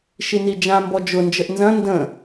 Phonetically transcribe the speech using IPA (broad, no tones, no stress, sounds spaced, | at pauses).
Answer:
ʃ i n i d͡ʒ ã m b ɔ d͡ʒ ʊ n d͡ʒ ə ʔ n z ɐ̃ n d ə̃